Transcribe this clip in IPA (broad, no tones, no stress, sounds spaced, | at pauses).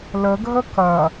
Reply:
l ə ɡʱ ə k ɐ